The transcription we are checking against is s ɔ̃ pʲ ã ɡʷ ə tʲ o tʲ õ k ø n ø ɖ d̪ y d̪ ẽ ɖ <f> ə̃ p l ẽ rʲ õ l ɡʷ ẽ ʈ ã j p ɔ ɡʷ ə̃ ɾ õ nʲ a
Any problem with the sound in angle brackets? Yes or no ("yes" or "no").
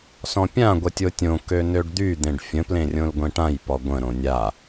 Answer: yes